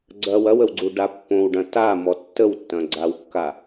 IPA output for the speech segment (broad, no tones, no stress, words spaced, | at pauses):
ɡ͡ǀɐw ɐwəwɡ͡ǀuɖa pːõwɖɐ̃ tamɔ tːəwtːɐ̃ɡ͡ǀawkːa